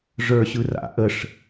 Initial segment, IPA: ʐ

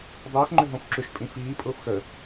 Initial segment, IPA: dˤ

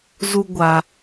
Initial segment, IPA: z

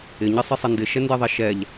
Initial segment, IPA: ɪ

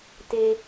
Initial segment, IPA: t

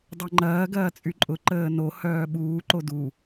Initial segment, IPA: dˤ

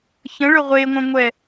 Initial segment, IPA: ç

